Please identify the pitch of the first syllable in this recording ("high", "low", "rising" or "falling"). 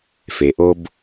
low